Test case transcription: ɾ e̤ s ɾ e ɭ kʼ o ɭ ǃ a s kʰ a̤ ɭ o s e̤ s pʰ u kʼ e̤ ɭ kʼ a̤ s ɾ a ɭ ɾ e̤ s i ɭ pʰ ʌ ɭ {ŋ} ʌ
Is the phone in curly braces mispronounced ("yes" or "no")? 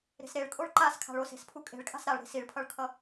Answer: yes